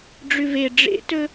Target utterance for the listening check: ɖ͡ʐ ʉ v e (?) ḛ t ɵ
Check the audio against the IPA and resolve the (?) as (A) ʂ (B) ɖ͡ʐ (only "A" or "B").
B